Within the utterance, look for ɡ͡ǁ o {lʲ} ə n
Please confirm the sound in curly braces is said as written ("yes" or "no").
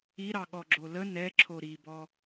no